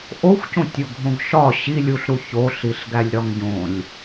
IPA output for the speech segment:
ʔ o xʷ c õ tʲ o ɡʱ õ ɡ ʃ ɒ ɕ i lʲ u ɬ ɾ u ç o ɬ i ɬ ɡ æ lʲ ɾ ɒ ŋ ɟ õ lʲ

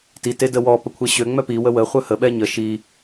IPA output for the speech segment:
t i t e d ə w ɔ p ə kʷʰ e ɕ ø ŋ͡m œ p i w ə w ə χʷ œ h ə ɓ ɛ ɲ ə ʃ i

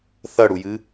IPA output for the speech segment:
θ ɐ ɽ u j ɨ

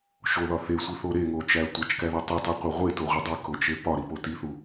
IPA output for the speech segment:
ʃ o ð ɒ θ e sʷ i θ o ɾ e ŋ o t͡ʃ æ tʷ æ t͡ʃ k æ ð ɒ tˤ u tˤ i qʷ e ʁʷ e t o ʁʷ i dˤ i k o t͡ʃ e p ɒ ɾ i p o t i θ u

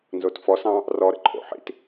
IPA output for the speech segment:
n z o t f ɔ s ɑ̃ | r ɔ ɾ ə̰ ǃʼ o̰ ħ ḭ t

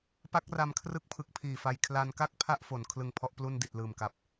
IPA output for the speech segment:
p a˦˥ k̚ r a˧ m kʰ r ɯ˦˥ k̚ pʰ ɯ˨˩ k̚ pʰ iː˨˩ f a˧ j kʰ l a˧ n k a˥˩ k̚ pʰ a˥˩ ʔ f o˩˦ n kʰ l ɯ˧ ŋ pʰ ɔ˦˥ ʔ p l u˥˩ n d i˨˩ t̚ l ɯː˨˩ m k a˨˩ p̚

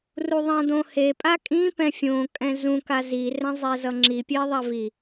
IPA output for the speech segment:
r u ðˤ ã d̪ õ h e pʼ a kʼ ĩ p ɛ̃ fʲ õ kʼ ɛ̃ z ũ k a z i r ɛ̃ zˤ ɛ z ʌ ŋ͡ǁ i pʲ e ðˤ a v i

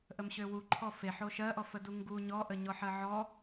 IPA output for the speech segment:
ʔ ə m ɕ ø w u ǃʰ ɔ f e ħ o ʃ ɜ ʔ ɔ f ə d u ŋ ɡ u ɲ ɔ ʔ ə ɲ ɔ ħ ɜ ʕ ɔ

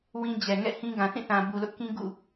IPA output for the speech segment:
w ĩ˦ d͡ʑ ɛ˨ ŋ ɛ̰˦˨ h ĩ˦ ɡ ã˨ θ ĩ˦˨ θ ã˨ b u˨ l ʊ˦ ʔ k ĩ˦ ɡ ṵ˦˨

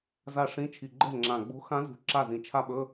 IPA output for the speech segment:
z a˥˩ ʂ ĩ˧˥˧ t͡ʃʰ i˨˩ ɡ͡ǃ ɛ̤˥˩ ŋ͡ǁ ã˨˩ ɡ͡b o̤˧˥ x ã˧˥ z ṳ˨˩ ǁ a˥˩ z ĩ˨˩ t͡ʃʰ a˥˧ ɓ ɵ˧˥˧

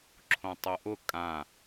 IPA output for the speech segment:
ǁʰ õ tˤ o ʔ ʊ kʼ ã

